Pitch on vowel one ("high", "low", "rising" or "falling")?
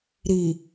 low